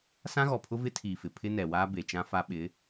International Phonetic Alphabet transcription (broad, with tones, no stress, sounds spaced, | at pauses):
s ã˦ ɣ ɔ˨ pʰ ʊ˦ v ɪ˦ tʰ iː˨ f ɪ˨ pʰ ɪ˦ n ɛ˨ w aː˦ b e˨ t͡ʃ ã˦ f a˦ ɓ ɪ˨˦